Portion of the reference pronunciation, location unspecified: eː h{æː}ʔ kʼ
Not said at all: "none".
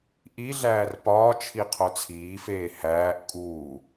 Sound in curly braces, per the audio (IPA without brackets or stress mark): æː